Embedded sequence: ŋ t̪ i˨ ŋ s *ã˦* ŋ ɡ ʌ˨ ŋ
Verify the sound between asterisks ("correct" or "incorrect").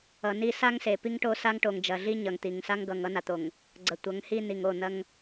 incorrect